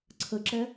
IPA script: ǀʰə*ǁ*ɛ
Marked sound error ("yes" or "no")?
no